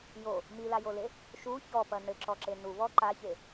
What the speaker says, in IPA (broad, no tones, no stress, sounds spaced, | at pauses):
j o | m i l a j o l e | ʃ u ç ɔ p ɐ n ɘ ǁ ɔ ǁ e n u β ɔ ǃ a ç e